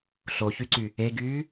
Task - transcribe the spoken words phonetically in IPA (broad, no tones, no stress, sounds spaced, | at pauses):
ɬ o ç y ǀ y | e ɡ yː